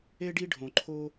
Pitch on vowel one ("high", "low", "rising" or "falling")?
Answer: high